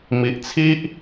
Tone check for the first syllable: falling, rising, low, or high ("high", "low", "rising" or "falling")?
low